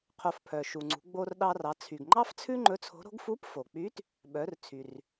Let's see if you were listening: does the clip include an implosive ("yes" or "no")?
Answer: yes